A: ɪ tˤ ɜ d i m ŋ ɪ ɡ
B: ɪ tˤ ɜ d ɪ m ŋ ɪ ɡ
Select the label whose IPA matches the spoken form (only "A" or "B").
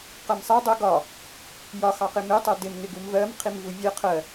B